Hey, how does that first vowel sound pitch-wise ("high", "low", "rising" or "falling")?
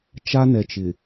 high